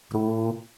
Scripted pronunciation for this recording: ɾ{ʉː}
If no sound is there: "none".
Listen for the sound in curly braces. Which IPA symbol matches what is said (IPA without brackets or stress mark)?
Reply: uː